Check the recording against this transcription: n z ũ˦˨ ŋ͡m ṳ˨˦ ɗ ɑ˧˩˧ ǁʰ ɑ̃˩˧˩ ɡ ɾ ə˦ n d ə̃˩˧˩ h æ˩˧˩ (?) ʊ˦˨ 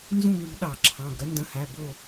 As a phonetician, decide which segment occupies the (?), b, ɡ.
b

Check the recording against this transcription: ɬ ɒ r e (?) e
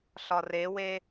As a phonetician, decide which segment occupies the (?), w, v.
w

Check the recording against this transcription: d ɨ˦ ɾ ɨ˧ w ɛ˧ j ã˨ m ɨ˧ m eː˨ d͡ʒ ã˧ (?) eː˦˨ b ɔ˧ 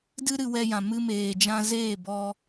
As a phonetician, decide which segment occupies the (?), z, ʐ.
z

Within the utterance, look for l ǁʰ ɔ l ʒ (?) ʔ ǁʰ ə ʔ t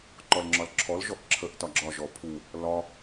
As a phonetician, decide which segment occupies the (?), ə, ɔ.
ɔ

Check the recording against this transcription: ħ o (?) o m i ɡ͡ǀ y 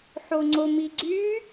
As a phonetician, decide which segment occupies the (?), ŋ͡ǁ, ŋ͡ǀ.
ŋ͡ǀ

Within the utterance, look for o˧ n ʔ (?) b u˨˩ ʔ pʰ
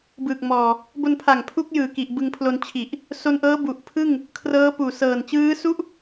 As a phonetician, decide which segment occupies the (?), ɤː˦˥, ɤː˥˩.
ɤː˦˥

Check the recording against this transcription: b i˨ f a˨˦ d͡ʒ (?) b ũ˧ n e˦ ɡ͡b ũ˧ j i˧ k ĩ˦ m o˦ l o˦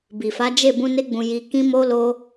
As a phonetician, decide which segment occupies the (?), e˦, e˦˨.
e˦˨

